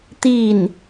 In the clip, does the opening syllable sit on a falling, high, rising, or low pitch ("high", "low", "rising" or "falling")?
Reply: falling